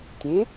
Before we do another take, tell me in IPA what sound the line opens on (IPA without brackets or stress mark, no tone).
tʲ